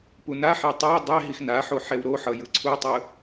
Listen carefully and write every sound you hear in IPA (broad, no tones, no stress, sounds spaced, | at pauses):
p u n a ħ e tˤ a dˤ e ɦ i x n a ħ o ħ ɛ w ɾ o ħ ʌ j ɯ ǀʰ u tˤ ɯ